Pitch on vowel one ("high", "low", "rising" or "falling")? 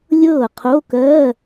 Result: falling